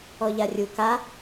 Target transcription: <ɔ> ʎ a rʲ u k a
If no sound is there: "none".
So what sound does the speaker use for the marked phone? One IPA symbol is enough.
ɔ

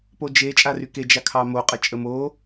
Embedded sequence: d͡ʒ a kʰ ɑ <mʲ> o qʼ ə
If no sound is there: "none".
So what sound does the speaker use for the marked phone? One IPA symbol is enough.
m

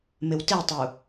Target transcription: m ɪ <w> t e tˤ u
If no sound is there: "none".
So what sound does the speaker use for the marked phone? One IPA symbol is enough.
w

